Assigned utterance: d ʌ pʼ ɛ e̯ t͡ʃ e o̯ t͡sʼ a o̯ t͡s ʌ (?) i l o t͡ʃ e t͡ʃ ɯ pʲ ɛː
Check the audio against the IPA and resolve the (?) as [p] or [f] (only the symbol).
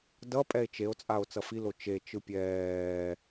f